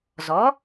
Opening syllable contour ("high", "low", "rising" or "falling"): rising